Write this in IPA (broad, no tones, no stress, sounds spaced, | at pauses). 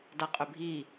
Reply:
d a qʼ ʏ bʱ i